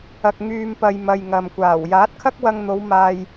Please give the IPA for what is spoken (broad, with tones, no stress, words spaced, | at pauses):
ɐ˧k̚ŋyː˧mpɐ˧j mɐ˧jŋɐ˨mkʷaː˨˩w jaː˨˥t̚kʰɐ˥k̚wɐ˧ŋn̪o˨˧w maː˧j